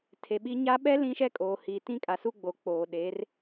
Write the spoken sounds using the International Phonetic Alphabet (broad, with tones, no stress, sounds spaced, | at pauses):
tʰ e˨ ɓ i˦ ɲ a˦ ɓ ɛ˦ l ĩ˦ ʃ ɛ˦ kʼ oː˨ h iː˨ t ĩ˦ kʼ a˨ s u˦ ɡ͡b o˨ k͡p oː˨ ɗ e˨˦ r